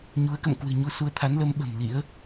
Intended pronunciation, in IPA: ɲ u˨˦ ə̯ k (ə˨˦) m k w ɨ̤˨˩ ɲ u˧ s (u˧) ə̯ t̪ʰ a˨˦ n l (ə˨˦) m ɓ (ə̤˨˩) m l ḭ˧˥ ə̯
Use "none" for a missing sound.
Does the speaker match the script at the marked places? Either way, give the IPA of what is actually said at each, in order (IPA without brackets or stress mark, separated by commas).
ə̰˧˨, u˧, ə˨˦, ə̤˨˩